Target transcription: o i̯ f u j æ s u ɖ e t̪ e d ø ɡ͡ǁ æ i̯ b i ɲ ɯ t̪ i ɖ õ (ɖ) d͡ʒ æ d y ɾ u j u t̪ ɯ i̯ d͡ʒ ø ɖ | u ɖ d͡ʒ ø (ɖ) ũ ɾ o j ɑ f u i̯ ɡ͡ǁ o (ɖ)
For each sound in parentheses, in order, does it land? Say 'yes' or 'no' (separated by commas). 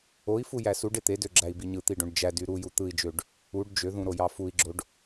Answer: yes, no, yes